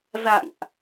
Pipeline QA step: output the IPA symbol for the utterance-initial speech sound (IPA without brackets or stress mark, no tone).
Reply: z